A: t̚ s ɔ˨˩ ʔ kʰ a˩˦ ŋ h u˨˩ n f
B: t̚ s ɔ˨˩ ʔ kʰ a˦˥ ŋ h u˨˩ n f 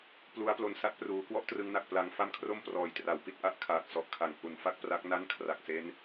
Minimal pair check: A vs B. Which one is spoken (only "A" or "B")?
A